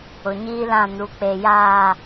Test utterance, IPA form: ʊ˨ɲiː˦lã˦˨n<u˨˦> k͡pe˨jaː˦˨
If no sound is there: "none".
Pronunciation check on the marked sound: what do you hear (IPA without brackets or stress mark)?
u˨˦